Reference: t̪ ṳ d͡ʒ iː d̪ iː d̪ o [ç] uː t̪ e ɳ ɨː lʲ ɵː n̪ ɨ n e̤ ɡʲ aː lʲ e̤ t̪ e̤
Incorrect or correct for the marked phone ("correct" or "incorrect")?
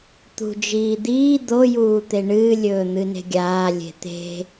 incorrect